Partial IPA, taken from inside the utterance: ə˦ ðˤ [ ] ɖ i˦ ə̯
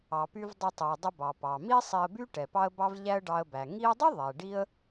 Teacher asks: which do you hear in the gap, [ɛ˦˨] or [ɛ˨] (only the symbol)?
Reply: ɛ˨